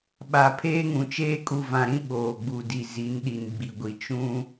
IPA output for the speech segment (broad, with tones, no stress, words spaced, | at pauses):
ɓa˨ pʰeː˦ŋũ˨t͡ʃeː˦ kʼu˨vã˨ɾĩ˦ ɓoː˨ɡ͡bu˨di˨ zi˨˦nɗi˨n ɡ͡bi˨ɡʷi˨ t͡ʃũ˦